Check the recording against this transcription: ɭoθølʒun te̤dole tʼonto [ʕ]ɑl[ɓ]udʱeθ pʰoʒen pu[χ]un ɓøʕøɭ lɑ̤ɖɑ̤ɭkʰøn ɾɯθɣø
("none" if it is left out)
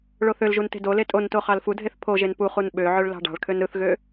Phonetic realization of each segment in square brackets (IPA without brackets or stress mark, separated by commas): χ, f, χ